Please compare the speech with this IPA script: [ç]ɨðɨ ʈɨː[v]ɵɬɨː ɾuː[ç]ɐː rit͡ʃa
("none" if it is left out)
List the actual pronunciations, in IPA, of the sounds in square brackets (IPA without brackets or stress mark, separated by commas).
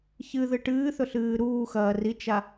ç, θ, x